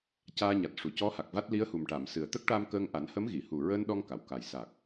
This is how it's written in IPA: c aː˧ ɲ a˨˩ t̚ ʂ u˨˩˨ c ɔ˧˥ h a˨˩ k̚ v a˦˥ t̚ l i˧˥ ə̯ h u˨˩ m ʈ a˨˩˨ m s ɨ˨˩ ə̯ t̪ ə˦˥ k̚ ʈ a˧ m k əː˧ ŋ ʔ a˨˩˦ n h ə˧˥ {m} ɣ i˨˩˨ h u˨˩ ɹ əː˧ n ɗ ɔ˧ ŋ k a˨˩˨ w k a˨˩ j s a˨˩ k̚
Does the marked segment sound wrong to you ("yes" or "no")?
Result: no